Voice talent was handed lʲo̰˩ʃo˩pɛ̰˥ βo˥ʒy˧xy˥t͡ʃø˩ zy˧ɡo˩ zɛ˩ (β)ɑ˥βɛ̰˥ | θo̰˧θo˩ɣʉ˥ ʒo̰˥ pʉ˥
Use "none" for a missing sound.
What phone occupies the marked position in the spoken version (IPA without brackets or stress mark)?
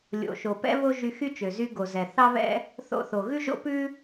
θ